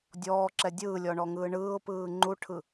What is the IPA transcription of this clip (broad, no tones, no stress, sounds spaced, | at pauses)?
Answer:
dʲ ɔː ǁ ɛ dʲ ɯː lʲ ɔ ɳ ɔ ŋ ɯː ɳ ɯː ʊ̯ p ɯː ŋ͡ǃ u ʈʰ ɯ